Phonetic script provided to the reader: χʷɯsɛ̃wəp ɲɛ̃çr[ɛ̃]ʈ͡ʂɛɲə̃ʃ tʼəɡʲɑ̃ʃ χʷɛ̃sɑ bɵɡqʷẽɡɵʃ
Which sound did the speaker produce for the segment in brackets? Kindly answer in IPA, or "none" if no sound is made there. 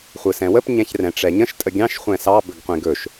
ɛ̃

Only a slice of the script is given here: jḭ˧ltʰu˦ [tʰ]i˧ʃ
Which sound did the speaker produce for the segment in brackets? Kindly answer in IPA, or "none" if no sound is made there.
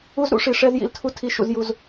tʰ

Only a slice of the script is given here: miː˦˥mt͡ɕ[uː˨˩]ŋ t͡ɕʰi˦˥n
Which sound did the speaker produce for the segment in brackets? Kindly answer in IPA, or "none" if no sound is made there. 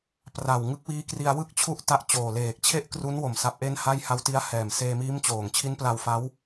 oː˨˩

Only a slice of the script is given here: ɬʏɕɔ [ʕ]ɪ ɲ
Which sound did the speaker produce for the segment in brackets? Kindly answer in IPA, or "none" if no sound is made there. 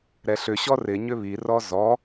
r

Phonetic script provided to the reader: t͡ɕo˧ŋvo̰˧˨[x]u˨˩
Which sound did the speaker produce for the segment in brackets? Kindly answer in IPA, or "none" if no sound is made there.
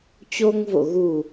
ɣ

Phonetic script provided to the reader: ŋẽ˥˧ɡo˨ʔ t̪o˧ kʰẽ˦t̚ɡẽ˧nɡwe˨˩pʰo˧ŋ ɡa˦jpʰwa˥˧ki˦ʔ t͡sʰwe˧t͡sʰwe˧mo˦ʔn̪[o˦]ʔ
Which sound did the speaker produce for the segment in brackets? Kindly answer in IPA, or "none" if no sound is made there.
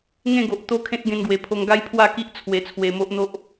o˦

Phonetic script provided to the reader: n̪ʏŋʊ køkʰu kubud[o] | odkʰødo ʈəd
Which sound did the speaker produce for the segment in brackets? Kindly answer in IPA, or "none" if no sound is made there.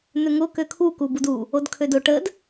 u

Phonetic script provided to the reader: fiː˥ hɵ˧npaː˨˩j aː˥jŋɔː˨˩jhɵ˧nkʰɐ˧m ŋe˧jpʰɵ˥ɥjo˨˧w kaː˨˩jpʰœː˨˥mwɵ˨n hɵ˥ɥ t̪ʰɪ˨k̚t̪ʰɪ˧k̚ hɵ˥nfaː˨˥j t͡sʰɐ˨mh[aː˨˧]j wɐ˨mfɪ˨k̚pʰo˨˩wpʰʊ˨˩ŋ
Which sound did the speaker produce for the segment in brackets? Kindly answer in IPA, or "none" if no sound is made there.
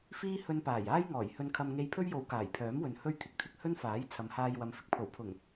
aː˧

